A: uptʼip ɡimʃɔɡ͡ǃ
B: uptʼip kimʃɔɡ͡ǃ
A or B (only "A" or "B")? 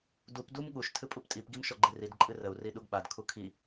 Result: A